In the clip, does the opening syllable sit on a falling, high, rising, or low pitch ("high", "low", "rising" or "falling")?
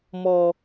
low